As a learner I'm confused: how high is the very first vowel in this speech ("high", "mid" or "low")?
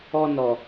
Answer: mid